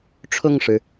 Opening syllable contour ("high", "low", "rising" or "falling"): falling